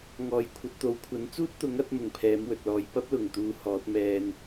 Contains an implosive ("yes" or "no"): no